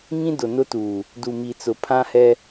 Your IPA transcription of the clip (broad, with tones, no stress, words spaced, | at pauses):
ŋĩ˦ dʊ˨nʊ˦tuː˨ | du˨mi˨t͡sʊ˨ pʰã˦hɛ˦